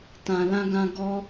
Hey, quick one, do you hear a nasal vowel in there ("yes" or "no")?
yes